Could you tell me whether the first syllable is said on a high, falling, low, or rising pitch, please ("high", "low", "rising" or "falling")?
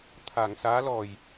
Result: low